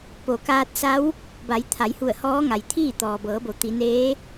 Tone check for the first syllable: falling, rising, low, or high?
low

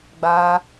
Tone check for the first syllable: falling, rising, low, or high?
high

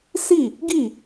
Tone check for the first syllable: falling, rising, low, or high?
falling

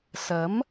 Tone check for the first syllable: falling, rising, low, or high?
rising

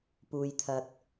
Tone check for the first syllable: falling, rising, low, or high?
low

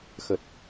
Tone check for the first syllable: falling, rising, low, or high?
low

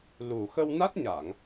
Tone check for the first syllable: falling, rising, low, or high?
low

